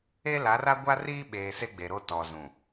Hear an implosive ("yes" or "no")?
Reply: yes